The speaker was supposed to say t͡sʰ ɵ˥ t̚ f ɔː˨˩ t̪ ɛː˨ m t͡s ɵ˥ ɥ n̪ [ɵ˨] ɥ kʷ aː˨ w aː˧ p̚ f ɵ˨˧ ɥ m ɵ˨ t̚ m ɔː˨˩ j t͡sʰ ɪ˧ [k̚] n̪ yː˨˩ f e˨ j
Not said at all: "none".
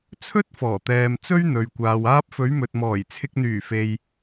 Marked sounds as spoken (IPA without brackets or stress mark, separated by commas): ɵ˨, k̚